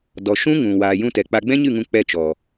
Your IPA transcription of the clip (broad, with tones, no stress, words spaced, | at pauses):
dɔ˨ʃũ˦ ŋũ˨ waː˨ jũ˧tɛ˨k͡pa˧ ɡ͡bɛ̃˦ɲɨ˦˨ŋũ˧ k͡pɛ˧t͡ʃɔ˨